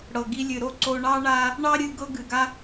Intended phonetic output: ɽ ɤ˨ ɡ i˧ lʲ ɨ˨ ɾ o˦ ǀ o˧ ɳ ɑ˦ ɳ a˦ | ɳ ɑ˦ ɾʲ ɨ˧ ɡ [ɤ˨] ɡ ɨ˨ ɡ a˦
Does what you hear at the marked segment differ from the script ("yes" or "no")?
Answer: yes